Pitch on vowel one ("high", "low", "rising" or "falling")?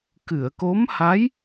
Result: low